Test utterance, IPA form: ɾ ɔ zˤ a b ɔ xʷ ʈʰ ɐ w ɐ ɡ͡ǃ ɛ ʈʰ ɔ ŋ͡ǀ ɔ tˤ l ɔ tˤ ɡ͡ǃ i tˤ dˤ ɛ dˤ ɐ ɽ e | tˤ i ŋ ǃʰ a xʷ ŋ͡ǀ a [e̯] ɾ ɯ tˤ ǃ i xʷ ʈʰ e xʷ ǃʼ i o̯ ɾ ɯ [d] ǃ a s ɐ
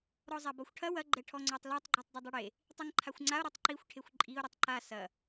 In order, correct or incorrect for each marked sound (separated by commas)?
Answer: incorrect, incorrect